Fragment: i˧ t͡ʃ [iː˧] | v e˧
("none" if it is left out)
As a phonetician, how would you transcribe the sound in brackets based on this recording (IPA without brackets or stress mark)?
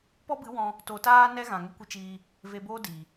iː˧